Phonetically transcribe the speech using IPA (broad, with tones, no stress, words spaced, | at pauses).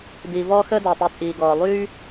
diː˨vɔː˦xəː˦ da˨tˤy˨ t͡sʼiː˨ɡɔː˨ lˠyː˦